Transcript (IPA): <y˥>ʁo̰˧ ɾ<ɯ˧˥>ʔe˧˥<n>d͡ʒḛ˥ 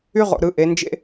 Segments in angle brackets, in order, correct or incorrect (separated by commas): correct, correct, correct